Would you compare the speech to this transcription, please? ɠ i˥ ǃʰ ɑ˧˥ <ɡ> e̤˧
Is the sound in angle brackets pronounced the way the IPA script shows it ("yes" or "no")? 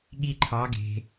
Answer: yes